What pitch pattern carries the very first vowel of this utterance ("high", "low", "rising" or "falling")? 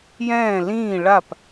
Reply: falling